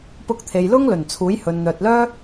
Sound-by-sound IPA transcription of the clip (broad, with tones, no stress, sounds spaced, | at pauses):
p ʊ˧ k̚ t̪ʰ e˨ j l ʊ˥ ŋ l ɵ˨˩ n t͡sʰ uː˨˥ j h ɵ˨ n n̪ œː˨ t̚ l œː˥